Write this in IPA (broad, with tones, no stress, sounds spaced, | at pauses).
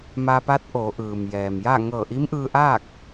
m a˧ p a˧˥ t̚ ʔ oː˩˧ ʔ ɯː˩ m j ɛː˩ m j a˥˨ ŋ ɤː˧˩ ʔ i˧˥ m ʔ ɯː˧ ʔ aː˥˨ k̚